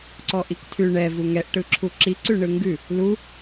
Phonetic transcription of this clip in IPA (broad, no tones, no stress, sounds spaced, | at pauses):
ǀ ɔ ʔ i k tʰ ʉ ɳ ɛ v u ŋ ɛ ʔ ʈ ɯ ǁʰ u ǁ i ǀ ʉ ɳ ɯ ŋ ɡ ʉ | l u